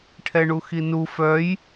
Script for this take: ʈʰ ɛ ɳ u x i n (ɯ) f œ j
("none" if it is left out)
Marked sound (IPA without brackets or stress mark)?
u